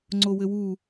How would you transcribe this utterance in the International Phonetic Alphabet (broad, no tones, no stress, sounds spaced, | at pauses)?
ŋ͡ǀ o w ɘ w u